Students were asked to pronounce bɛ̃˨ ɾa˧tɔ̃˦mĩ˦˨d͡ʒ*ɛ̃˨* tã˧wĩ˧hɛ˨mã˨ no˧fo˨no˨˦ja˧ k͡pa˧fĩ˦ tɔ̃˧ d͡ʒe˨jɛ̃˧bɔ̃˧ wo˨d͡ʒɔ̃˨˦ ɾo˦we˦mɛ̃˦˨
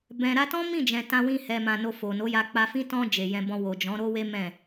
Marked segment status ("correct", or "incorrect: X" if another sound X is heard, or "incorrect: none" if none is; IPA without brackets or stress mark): correct